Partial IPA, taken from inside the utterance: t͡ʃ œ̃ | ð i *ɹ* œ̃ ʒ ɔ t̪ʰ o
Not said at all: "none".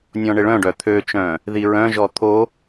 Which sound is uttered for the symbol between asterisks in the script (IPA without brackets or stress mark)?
ɹ